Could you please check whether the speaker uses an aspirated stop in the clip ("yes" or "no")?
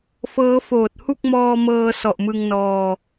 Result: no